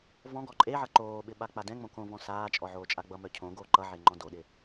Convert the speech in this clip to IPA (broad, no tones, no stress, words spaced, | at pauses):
vɔ̃ɡɔ ǃʼeʕʌ ǃoːɓɪ ɓak͡padɛ̃ŋ͡mõ kõvɔ̃ saːt͡ʃʼɔ ʕoːt͡ʃʼaɡ͡bʌmœ cʰõ ɡoːǃʌʕe ŋ͡ǃɔ̃doɗɪ